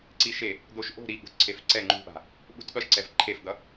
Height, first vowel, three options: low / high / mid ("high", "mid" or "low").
high